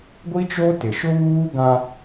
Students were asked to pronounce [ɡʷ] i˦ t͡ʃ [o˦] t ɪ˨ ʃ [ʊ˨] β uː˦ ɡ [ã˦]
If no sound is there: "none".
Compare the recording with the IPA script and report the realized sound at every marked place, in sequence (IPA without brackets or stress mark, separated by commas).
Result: ɡʷ, o˦, ʊ˦, ã˦